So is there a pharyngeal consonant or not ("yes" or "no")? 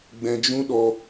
no